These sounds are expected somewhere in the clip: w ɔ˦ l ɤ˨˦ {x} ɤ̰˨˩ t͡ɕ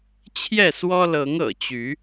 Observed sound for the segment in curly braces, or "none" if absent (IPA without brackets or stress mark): ŋ